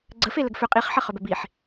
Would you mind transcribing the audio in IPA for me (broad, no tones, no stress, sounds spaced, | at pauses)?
ɡ͡ǀ ə f e l ə ɡ f ʏ qʼ i χ ħ ɜ χ ʏ b ɛ b i ħ